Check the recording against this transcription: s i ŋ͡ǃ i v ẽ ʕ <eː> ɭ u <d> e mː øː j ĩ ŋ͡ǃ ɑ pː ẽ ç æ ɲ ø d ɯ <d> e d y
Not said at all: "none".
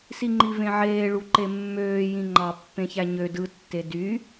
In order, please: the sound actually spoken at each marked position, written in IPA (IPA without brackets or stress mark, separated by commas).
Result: eː, ǃ, tː